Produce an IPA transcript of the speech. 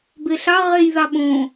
b e ɬ ɑ ʁ e j ð ɑ ɓ õː

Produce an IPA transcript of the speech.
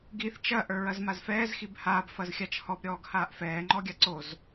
ɡ i θ t͡ʃ ɐ ʔ ə˞ ɹ ɐ z m a z f ɛː z x i b h aː b f ɐ z xʲ a t͡ʃ h ɔ b ɾʲ ɔː ɡ h aː ʔ f ɛː ŋ͡ǃ ɔ ɡʲ a ǀ o z

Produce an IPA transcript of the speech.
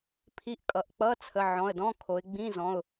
pʰ i˧˥˧ ʔ kʼ ʌ˩˧ ʔ k͡p ʌ˧˥˧ t͡sʰ ə˩˧˩ ʕ ɔ̃˩˧˩ ə̯ d ɔ̃˧˥˧ kʰ o˩˧ ɪ̯ ɡ͡b ĩ˧˥˧ z ɔ̃˩˧˩ ʊ̯

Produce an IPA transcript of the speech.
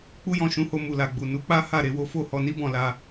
k͡p u˦ j ɔ̃˦˨ ʃ ũ˨˦ h o˧ m u˨ l a˨ ɡ͡b u˨ n u˨˦ k͡p a˦ h a˦˨ ɾ e˨˦ w o˦ f o˦˨ h ɔ˧ n i˦ b ɔ̃˦˨ l a˧

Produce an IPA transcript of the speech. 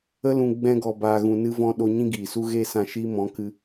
ə˧ l ũ˨ ɡ͡b ɛ̃˧ ɡ ɔ˨ b aː˨ ɣ ũ˨ n ɨ˧ v ɔ̃˧ ɗ o˧ ɲ ĩ˦ ɡ iː˨ s u˦ ɣ eː˦ s ã˧ ʃ iː˦ m ɔ̃˨˦ k ɨ˦

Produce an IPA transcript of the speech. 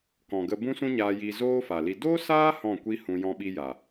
k ɔ̃˨ ɡ ə˧ b ũ˦ s ũ˦ ɲ aː˧ j i˧ z oː˦ f a˨ l i˧ d o˦ s aː˦ h ɔ̃˦˨ kʷ i˦ h ũ˧ j ɔ̃˦ ɓ i˦ j a˨

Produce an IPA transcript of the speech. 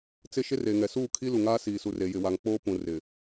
t͡s ɪ˦ ʃ ɪ˦ r e˨ ŋ ɛ˨ s uː˦˨ kʰ i˦ l u˨ ŋ aː˦ s iː˨ s u˨ r e˨ j ɪ˨ w a˨ ŋ k͡p oː˦ p ũ˨ r ɪ˨

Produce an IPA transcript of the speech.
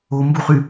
o m b u χ y

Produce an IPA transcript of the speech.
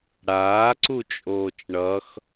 ɽ aː ǀ u t͡ʃʼ oː t͡ʃ ɳ ʌ x

